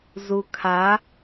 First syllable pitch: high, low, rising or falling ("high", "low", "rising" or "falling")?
low